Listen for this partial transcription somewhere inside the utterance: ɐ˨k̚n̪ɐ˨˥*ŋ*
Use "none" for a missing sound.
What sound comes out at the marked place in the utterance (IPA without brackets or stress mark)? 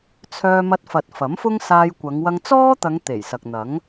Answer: ŋ